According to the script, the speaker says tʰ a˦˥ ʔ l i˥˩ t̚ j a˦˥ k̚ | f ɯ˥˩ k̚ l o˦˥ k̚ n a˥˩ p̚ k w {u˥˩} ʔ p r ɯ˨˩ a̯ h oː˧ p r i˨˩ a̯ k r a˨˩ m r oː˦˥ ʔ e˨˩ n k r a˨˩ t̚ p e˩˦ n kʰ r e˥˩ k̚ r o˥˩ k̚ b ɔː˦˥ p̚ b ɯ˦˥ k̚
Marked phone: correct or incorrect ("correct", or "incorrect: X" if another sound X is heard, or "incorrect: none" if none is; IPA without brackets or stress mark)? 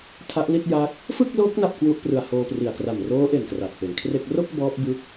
correct